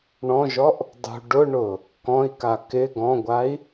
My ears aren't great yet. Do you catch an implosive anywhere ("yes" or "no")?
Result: no